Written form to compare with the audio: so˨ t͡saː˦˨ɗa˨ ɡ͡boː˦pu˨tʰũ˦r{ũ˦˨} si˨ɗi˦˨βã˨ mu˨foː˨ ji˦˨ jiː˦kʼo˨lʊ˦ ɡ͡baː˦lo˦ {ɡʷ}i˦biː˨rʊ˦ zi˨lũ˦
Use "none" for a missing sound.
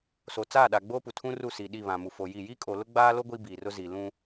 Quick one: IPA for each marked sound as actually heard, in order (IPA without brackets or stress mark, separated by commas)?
u˦˨, ɡʷ